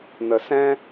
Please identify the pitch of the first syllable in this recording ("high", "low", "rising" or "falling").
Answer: low